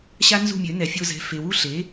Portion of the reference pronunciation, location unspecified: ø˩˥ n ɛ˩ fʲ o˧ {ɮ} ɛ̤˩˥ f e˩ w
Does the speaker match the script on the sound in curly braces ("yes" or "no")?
no